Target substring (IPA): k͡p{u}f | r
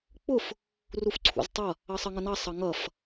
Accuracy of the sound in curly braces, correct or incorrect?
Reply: incorrect: ʊ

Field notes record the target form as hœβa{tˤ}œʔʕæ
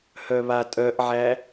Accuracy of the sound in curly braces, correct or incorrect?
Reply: incorrect: tʼ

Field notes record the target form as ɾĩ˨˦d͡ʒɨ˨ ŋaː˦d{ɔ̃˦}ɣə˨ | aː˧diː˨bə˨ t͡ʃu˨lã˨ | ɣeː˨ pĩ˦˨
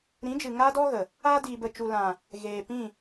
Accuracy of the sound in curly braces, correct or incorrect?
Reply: incorrect: ɔ˦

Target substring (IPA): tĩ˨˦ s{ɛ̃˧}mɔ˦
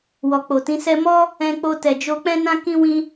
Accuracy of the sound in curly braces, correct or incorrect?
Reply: incorrect: ɛ˧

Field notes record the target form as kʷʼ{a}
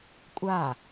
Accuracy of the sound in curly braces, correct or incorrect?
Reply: correct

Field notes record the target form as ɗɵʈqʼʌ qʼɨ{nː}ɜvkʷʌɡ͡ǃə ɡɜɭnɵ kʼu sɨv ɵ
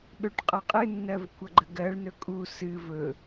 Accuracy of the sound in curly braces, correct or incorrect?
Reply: correct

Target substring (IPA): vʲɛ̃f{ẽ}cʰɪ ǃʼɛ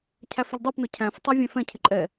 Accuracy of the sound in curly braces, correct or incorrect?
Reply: incorrect: ɛ̃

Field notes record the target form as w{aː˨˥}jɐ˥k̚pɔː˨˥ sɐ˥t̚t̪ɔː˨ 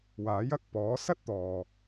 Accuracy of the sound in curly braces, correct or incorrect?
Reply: correct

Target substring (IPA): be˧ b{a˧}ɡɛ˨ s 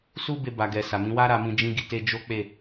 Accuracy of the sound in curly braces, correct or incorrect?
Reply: incorrect: a˨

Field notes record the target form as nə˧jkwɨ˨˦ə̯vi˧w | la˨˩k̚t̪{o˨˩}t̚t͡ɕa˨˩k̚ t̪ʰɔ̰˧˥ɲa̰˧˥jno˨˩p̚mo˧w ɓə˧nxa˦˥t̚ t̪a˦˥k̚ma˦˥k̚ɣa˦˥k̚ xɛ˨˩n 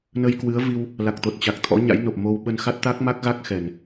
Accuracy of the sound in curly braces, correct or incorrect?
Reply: correct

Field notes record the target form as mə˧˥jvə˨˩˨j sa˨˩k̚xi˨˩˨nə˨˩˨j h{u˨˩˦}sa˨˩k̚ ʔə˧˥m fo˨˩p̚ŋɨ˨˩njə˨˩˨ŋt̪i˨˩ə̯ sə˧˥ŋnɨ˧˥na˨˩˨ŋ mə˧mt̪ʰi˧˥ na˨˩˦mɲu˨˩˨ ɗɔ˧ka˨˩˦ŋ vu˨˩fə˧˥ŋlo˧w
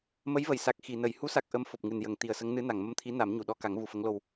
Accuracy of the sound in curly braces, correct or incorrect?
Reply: incorrect: u˧˥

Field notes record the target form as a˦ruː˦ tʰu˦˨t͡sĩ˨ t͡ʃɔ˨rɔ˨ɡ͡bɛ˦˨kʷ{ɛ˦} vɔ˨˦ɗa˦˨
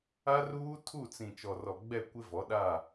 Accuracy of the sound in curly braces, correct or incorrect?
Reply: incorrect: ɪ˦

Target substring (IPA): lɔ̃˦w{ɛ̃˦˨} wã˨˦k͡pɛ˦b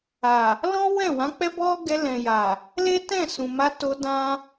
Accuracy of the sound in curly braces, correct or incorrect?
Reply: correct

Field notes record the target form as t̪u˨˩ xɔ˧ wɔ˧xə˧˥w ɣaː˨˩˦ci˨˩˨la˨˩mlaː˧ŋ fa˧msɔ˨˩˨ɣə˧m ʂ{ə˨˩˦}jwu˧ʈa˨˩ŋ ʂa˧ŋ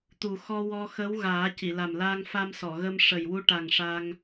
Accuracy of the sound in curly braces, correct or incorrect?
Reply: incorrect: ə˨˩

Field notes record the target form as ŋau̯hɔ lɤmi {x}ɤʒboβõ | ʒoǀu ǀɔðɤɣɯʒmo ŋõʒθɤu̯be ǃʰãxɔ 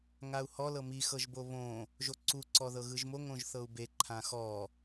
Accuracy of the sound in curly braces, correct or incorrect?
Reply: correct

